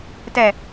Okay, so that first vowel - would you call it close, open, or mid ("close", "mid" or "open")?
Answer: mid